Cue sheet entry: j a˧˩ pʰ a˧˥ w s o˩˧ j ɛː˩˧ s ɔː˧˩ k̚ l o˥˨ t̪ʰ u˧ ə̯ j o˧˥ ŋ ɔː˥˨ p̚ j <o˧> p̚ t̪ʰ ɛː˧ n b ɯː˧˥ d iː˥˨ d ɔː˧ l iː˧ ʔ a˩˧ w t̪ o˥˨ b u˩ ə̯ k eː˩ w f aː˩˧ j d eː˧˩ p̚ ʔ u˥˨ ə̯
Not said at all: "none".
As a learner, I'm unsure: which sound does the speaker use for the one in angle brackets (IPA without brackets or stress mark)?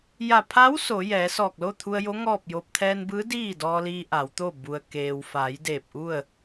o˧